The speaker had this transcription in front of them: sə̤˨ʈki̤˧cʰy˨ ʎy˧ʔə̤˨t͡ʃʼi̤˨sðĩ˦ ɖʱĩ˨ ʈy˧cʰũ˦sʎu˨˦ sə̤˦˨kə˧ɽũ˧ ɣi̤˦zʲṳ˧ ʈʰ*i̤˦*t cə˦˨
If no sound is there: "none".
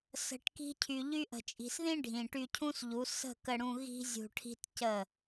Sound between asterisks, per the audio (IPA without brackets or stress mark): i̤˦